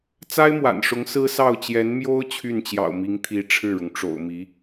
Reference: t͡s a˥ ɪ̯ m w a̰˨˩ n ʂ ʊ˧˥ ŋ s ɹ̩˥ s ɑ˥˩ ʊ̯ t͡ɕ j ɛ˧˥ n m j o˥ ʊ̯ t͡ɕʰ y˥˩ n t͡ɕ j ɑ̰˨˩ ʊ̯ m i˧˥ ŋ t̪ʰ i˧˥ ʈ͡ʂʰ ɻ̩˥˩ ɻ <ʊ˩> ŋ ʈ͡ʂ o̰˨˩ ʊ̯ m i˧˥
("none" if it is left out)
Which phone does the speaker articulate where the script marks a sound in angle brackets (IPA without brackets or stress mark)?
ʊ˩